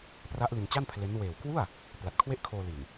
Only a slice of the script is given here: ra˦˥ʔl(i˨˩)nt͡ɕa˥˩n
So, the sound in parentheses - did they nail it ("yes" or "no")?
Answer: no